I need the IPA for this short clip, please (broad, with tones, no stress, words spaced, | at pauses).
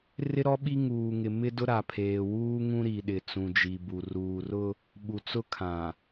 rɪ˦ɾɔ˦ɓi˦ ŋuː˨ŋɪ˨ mɪ˦dʊ˦ɾa˨pʰeː˨ wuː˦ŋũ˦ ɾi˨ɗɪ˨ t͡sũ˨d͡ʒi˨bu˨ ruː˨rʊ˦ | ɓu˨t͡sʊ˦kʰã˨